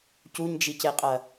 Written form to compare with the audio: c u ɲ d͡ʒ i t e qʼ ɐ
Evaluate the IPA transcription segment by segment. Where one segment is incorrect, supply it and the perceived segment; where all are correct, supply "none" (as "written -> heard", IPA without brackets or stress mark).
t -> c